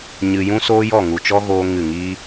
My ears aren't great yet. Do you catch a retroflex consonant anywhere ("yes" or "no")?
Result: no